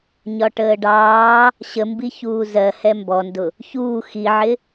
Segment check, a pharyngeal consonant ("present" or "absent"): present